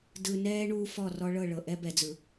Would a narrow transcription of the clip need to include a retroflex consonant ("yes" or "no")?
yes